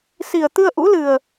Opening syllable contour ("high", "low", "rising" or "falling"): low